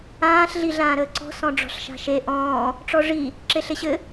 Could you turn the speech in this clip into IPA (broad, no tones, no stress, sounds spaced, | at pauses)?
ãː ɬ ɮ i ɮ ãː ɾ əː ǀ ɔ̤ s ɔ̃ ɖ͡ʐ ɔ̤ ɬ ʃ a̤ ʃ e ʔ ɔ̃ː | ʈ͡ʂ ɔ ʐ i | ǁ e ɬ e ɕ ɘ